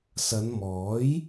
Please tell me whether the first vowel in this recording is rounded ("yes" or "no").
no